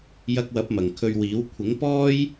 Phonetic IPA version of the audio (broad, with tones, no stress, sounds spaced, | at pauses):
j ɐ˧ k̚ w ɐ˨˥ p̚ m ɐ˨ ŋ kʰ ɵ˧ ɥ w iː˨˥ w kʷʰ ɪ˨˥ ŋ p ɔː˥ j